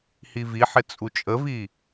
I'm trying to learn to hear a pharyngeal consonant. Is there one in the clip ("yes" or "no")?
yes